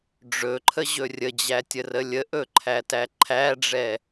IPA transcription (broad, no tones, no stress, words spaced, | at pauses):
ɖ͡ʐɵǃʰəʑɵ rʲəd͡ʑætʲərə lʲəʔɵǃʰætæ ǃʰæɖ͡ʐɛ